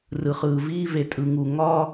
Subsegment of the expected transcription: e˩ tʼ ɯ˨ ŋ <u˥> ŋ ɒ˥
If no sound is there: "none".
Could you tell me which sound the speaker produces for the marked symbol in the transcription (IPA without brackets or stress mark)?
u˩